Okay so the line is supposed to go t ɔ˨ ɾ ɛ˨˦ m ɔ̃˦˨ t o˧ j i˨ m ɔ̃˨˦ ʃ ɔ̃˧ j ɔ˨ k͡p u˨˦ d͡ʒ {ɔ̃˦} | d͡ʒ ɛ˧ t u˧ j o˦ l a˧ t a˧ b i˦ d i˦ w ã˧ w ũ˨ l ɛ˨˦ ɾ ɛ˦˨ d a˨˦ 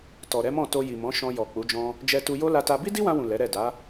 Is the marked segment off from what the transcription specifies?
no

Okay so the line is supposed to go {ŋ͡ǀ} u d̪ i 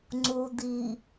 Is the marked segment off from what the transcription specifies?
no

